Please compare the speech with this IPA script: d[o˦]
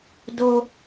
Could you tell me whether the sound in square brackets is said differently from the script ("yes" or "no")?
no